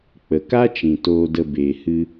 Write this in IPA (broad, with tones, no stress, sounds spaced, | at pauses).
k͡p ə˨ k a˦ t͡ʃ ĩ˨ t oː˧ d ə˧ b eː˨ h ɨ˧